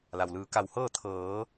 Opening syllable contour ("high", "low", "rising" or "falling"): low